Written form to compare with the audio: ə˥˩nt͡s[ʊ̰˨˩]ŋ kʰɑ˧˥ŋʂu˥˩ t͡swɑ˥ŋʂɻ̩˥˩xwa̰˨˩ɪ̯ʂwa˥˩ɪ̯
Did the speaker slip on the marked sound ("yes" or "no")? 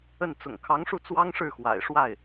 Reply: no